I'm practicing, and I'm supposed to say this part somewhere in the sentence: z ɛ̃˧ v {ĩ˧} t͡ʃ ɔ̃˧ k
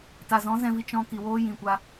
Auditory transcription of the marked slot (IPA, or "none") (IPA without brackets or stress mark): i˧